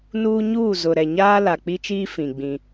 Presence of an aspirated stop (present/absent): absent